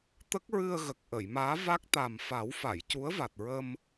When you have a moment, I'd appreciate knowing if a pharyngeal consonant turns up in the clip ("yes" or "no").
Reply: no